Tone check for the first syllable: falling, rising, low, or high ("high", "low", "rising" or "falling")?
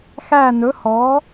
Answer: falling